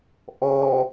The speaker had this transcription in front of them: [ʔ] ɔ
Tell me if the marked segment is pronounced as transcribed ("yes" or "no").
yes